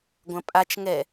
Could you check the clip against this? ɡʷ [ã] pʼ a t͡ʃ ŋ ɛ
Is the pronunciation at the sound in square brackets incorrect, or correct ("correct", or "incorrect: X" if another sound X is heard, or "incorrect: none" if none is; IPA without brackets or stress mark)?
incorrect: ɐ̃